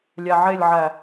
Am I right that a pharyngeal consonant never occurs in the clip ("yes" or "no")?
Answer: no